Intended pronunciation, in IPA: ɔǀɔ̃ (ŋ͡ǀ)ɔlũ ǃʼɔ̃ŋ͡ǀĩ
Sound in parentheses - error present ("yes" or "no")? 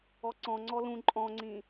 no